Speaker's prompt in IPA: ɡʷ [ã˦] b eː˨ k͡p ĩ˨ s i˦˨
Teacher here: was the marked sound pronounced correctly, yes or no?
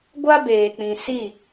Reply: no